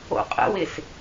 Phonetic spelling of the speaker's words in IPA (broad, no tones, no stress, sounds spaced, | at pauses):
o̰ qʼ ə̰ w ɪ s